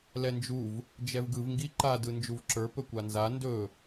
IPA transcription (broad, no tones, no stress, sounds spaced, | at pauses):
l ɛ n d͡ʒ u v | d͡ʒ ɛ v ɡ ɯ v ŋ ɡ i ǃ a d ɯ n d͡ʒ u v ǁ ə˞ p ɵ kʷ a n z a n d ɵ